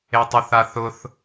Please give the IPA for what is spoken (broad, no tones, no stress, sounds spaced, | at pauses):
e tˤ u θ a θ ʊ θ